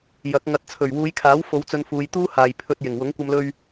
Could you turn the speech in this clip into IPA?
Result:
j ɐ˨˥ k̚ ŋ ɐ˨ t̚ t͡sʰ ɵ˨˩ ɥ w uː˨˧ j kʰ aː˨˥ w f o˨˧ w t͡s ɵ˧ n f uː˨˧ j t̪ uː˥ h aː˨ j pʰ ɵ˧ t̚ j ɪ˨˩ ŋ w ʊ˨˥ ŋ kʷ ɐ˧ m l ɵ˧ ɥ

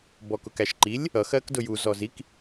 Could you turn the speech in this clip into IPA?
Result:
b ɔ k ʊ k æ ʃ ǃ i lʲ | ʌ x ɜ k d ʊ j u z ɔ z i k

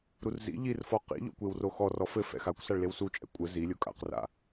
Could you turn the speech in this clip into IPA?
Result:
ɾ u r z ḭ ʎ i r f ɔ q ḭ ʎ ɔ̰ kʷ e w r o x ɔ r ɔ f ɘ f ɛ̰ x a kʷ s a ɭ l e w s u t͡ʃʼ ɛ̰ kʷʼ ɘ z i lʲ o kʼ a̰ q r a̰

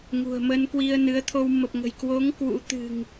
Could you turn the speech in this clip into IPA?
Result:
ŋ ṳ˨˩ ə̯ m ə˧ n k w i˧ ə̯ n ɨ˨˦ ə̯ t̪ʰ o˧ w m ə˨˩ p̚ ŋ ə̤˨˩ j k w o˨˦ ŋ k w ṵ˧˥ t̪ ɨ̤˨˩ ŋ

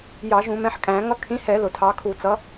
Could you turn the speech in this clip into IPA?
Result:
j ɑ˧˩˧ ʒ ũ˧˩˧ m ɛ̃˨˦ ħ kʼ æ̃˧˩˧ ŋ ʌ˨˦ kʰ ĩ˨˦ h ɛ˧˩˧ l ʊ˧˩˧ tʰ ɑ˨˦ kʰ u˧˩˧ t͡s ʌ˨˦

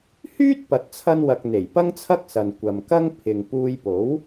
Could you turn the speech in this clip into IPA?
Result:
h yː˥ t̚ p ɐ˨ t̚ t͡sʰ ɐ˧ n w ɐ˨ k̚ n̪ e˨˩ j p ɐ˥ ŋ t͡sʰ ɐ˥ k̚ s ɐ˨ n kʷ ɐ˨ m k ɐ˥ ŋ pʰ ɪ˨ ŋ p uː˧ j p o˨˥ w

